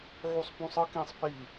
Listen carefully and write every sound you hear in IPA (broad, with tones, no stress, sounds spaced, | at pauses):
ʕ u˦ sˤ p ũ˦ sˤ ɯ˦ k ĩ˦ sˤ p i˦˨